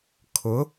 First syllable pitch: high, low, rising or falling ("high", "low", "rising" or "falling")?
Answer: rising